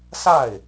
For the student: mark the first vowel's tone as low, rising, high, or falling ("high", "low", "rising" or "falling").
falling